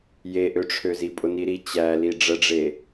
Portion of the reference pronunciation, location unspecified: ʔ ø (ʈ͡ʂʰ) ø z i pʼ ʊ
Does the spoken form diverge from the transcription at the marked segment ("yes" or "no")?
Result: no